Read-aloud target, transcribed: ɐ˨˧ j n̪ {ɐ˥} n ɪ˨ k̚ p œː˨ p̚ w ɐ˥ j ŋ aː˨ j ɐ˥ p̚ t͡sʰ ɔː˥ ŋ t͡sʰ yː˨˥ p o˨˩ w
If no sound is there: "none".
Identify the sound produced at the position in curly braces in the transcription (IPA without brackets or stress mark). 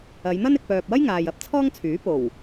ɐ˥